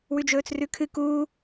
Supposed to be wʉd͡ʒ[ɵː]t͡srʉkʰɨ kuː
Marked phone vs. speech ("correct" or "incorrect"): correct